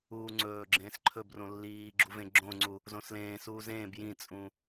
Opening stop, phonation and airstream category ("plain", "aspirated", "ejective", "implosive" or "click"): click